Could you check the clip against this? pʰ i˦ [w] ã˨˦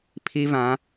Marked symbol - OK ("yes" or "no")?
no